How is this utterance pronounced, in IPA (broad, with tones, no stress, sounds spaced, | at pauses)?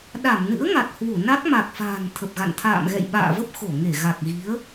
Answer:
ɗ a˧˩ m n ɨ̰˧˥ ə̯ ŋ a˨˩ t̚ h w u˧˩ n a˦˥ k̚ m a˨˩ k̚ f a̤ː˨˩ n t̪ʰ ə˨˩ p̚ ɣ a̰˧˨ n t̪ʰ a̰ː˧˨ m ɣ ɛ̰˧˨ j ɓ a̰ː˧˨ v ə˦˥ p̚ x o˧˩ ŋ e˧˩ ɣ a˨˩ k̚ ɣ i˨˦ ə̯